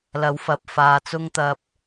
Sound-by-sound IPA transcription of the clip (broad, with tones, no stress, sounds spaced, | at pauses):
l ɐ˨˧ w f ɐ˨ p̚ f aː˧ t͡s ʊ˥ ŋ t̪ ɐ˧ p̚